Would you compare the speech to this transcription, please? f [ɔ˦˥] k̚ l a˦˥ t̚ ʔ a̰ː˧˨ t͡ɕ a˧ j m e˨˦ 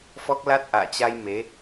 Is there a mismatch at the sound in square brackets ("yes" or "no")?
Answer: no